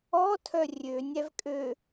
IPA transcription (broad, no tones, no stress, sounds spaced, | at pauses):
ɔ tʰ œ rʲ ø nʲ æ v kʼ ø